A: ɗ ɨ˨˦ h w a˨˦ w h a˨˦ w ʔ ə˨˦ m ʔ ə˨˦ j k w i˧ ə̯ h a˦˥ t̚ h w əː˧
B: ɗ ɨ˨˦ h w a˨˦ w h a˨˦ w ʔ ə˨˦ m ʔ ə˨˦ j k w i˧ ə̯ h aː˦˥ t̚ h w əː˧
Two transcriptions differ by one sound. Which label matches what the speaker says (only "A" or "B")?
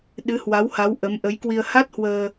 A